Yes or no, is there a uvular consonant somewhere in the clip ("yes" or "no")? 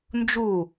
no